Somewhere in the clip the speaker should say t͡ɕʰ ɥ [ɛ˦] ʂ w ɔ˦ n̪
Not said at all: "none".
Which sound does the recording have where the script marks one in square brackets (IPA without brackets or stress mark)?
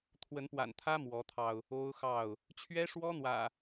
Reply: ɛ˦